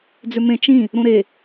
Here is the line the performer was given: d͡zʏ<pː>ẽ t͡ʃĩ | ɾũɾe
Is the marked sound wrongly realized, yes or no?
yes